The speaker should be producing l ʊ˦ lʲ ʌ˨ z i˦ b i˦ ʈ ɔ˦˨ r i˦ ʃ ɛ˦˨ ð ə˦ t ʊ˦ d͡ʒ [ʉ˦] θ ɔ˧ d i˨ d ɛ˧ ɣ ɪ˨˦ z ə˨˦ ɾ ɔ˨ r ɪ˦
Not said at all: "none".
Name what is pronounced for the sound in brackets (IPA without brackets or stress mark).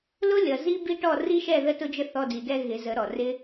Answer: ə˦